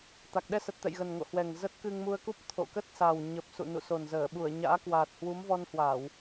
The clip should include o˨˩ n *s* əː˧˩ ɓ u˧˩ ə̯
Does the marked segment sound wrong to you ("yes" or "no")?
yes